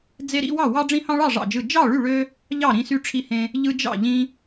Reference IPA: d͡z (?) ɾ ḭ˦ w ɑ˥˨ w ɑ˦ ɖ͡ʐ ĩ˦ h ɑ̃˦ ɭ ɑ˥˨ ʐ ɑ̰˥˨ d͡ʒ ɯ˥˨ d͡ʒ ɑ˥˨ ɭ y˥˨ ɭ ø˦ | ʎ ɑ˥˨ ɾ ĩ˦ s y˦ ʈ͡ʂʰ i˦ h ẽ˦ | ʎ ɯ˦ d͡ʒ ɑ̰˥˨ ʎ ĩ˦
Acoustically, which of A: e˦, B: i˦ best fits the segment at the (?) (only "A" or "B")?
A